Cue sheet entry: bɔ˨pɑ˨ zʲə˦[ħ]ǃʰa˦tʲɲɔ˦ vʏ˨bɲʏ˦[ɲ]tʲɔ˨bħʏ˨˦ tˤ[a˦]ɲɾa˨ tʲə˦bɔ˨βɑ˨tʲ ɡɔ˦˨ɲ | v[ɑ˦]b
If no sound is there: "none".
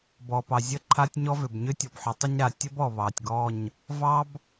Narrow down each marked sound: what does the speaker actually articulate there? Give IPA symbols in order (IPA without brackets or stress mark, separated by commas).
none, none, ə˦, ɑ˦